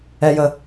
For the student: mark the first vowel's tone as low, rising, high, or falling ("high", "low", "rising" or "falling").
low